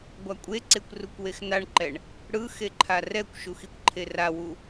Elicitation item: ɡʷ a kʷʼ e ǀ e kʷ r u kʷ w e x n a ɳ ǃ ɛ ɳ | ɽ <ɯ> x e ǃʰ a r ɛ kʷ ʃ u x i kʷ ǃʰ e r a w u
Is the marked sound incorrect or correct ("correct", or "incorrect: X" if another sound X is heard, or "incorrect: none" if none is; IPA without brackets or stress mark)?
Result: correct